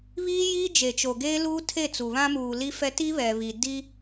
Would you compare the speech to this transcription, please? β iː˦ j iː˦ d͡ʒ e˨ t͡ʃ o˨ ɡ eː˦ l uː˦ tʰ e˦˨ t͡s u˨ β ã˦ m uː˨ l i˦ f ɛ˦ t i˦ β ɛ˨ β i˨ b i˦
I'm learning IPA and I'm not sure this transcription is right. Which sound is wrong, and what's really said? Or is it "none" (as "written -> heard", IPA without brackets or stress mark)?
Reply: b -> d